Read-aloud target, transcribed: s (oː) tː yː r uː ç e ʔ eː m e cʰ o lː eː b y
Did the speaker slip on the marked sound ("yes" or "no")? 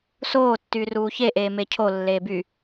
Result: no